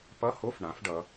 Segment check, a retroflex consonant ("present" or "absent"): present